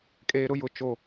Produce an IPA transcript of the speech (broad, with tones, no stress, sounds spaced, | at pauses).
kʼ eː˨ ɾ ʊ˦ j ʊ˨ t͡ʃ o˨